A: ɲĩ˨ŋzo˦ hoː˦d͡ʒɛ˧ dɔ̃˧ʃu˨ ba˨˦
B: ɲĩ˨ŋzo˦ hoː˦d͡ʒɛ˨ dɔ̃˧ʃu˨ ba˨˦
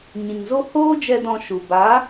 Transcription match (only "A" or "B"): A